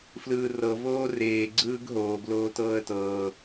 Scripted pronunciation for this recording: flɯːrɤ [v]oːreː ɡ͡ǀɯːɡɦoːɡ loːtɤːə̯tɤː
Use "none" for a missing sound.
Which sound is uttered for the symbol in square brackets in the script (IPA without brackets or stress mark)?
v